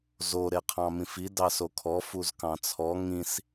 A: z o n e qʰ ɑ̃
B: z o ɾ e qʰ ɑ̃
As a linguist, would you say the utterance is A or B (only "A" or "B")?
B